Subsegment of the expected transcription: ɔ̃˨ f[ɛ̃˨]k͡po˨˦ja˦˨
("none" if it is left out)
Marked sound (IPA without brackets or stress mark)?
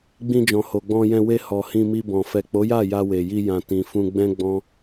ɛ˨